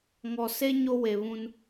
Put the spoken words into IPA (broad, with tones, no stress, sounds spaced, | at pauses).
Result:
ŋ ɔ˨ s e˦ ɲ o˦ w e˨ β ũ˦ n